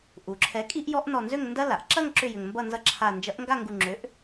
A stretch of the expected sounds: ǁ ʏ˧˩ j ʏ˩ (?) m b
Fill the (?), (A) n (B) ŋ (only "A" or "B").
B